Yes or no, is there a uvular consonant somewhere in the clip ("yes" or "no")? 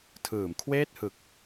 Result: no